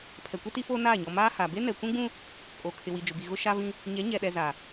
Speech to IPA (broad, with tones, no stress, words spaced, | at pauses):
pʰɛ˨kʷi˦ti˦foː˦ naː˦˨ɲɔ˨ maː˦ha˨ be˦nɛ˨kʷũ˦ɡ͡bũ˦ | kʼo˨ kʰɪ˨wi˨d͡ʒʊ˨bi˨ ɣʊ˦ʃa˦vĩ˦ | ɲɛ˨˦ɲɛ˨ɗɛ˨ za˨